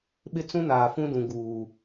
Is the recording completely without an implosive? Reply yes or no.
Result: no